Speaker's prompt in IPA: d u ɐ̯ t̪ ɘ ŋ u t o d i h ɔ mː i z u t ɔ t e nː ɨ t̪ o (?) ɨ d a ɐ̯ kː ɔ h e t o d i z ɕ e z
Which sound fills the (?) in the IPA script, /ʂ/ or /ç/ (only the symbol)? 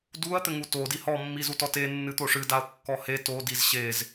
ʂ